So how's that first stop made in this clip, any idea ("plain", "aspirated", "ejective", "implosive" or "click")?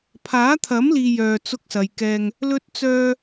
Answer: aspirated